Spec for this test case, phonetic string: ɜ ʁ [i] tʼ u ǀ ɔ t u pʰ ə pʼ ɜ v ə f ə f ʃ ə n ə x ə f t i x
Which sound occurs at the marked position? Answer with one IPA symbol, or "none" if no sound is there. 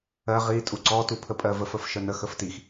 i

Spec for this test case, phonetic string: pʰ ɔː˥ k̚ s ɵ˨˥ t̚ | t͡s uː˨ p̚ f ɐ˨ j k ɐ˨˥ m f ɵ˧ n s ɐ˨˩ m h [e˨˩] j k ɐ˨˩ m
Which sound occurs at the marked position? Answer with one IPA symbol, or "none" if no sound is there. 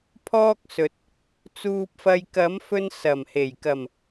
e˨˩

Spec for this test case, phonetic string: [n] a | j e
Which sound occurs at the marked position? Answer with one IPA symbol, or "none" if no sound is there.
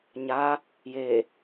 ɲ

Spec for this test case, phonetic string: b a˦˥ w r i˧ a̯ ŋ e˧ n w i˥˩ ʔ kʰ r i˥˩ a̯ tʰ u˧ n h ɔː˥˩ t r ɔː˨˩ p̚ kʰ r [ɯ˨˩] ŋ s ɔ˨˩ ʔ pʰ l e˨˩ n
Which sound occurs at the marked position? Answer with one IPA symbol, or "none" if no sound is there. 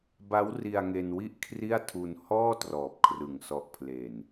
ɯ˨˩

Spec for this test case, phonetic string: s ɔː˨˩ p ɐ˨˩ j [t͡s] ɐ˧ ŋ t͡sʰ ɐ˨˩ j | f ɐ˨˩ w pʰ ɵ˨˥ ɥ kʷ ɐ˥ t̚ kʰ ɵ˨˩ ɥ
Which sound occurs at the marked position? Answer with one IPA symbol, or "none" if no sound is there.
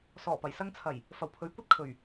s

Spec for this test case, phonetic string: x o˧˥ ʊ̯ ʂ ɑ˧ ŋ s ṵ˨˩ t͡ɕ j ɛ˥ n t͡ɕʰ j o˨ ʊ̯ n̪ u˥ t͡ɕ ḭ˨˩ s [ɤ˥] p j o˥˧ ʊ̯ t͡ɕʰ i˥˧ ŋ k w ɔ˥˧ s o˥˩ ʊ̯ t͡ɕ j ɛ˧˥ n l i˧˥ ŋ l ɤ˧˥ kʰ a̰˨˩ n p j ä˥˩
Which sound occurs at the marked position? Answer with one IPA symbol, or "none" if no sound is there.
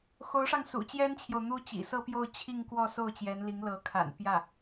ɤ˥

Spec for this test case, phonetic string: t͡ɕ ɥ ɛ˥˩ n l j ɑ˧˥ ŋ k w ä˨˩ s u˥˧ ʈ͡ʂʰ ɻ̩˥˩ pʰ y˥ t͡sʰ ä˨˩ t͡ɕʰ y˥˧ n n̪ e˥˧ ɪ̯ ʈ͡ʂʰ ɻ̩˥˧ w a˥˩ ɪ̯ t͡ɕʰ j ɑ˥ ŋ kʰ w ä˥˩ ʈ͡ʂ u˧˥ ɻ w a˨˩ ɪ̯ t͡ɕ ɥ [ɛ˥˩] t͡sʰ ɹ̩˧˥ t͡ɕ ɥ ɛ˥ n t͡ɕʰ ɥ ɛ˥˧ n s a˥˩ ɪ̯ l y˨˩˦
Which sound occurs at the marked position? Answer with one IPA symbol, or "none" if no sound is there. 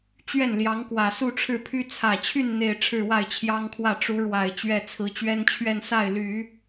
ɛ˥˩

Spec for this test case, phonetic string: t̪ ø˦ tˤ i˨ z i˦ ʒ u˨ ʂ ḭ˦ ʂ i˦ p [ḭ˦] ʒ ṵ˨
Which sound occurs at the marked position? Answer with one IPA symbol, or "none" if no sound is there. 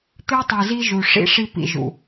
ḭ˨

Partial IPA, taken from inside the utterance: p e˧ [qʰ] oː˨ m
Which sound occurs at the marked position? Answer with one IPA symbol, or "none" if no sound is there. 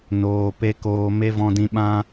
k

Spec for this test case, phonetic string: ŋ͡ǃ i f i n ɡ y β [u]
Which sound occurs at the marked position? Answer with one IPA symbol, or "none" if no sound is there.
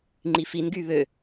ø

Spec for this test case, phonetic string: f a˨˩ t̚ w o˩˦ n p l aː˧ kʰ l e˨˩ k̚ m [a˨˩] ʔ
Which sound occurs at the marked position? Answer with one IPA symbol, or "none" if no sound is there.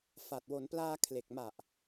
a˨˩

